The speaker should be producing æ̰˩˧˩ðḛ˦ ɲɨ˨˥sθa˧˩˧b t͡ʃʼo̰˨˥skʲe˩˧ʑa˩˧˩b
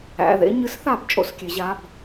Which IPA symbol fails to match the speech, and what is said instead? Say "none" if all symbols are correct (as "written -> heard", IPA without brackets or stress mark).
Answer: none